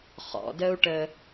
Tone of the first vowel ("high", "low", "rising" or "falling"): low